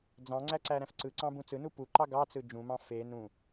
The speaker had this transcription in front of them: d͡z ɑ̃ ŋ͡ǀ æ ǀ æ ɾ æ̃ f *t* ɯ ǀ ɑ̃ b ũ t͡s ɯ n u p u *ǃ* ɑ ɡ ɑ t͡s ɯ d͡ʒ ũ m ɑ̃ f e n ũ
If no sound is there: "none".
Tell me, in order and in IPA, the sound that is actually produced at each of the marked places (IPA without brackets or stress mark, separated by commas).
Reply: ǀ, ǃ